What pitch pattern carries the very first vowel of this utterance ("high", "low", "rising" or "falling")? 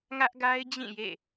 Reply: high